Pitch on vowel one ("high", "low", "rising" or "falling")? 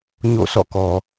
falling